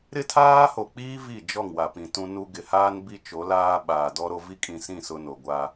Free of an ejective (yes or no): no